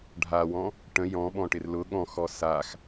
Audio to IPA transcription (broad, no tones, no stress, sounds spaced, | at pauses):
ɖʱ a w ɔ̃ | ʈ ə̃ j ɔ̃ ɓ ɔ̃ ʈ ɪ r l ʊ ɠ ɔ̃ x ɔ s a x